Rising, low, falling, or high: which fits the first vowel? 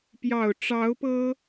low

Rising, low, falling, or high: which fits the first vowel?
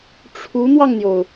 rising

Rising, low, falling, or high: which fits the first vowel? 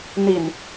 low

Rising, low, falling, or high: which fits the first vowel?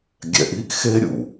low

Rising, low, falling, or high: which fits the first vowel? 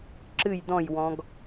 falling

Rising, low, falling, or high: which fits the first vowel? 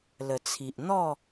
low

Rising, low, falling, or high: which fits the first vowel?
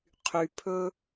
low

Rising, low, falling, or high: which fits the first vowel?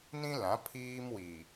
high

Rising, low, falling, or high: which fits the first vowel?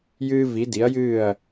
high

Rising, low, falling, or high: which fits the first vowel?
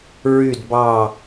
falling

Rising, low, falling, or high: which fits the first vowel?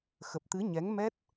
low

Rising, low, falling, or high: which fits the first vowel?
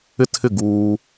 high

